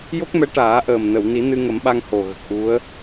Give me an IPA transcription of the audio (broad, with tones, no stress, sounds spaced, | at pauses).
j o˦˥ k̚ m ɛ˧˥ ʈ aː˨˩˦ ʔ əː˨˩ m n ə˨˩˨ w n i˨˩˦ n ɨ˧ ŋ ə˨˩˦ m ɓ a˧ ŋ h o˨˩ ɣ ə˨˩ k̚ ʔ u˧˥ ə̯